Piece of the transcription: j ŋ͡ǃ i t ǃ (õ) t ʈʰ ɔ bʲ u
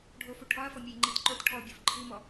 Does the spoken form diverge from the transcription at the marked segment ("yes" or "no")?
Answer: yes